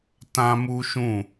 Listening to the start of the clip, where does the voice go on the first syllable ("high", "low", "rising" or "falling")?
high